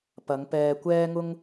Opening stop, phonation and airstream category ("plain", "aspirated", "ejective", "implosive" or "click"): plain